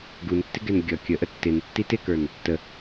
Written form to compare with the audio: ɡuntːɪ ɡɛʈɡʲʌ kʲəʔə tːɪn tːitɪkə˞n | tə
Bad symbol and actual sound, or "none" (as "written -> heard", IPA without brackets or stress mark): ʈ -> n